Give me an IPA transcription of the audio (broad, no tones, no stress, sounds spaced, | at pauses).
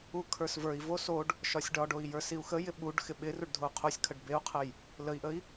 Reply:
u kʰ ə˞ s v ə˞ i̯ v o s o ɖ | ʃ ɒ sʲ ɖ ɒ ɖ o i̯ j ə˞ s i u̯ x ə j ɪ ɓ u ɖ x ɪ ɓ ɪ r u ɖ dʱ o u̯ qʰ o sʲ kʰ ə ɖ b e u̯ qʰ ə j | l ə i̯ ʔ ə i̯